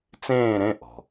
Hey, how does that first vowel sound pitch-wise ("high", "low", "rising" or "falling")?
falling